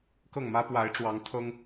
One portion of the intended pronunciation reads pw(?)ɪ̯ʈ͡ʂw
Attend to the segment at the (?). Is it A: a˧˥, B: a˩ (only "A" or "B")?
A